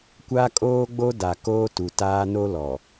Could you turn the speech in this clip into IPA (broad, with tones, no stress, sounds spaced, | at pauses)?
kʷ a˦ kʼ oː˦ ɡ͡b o˦ d a˨ k oː˦ t u˨ t aː˦ n o˦ l ɔ˨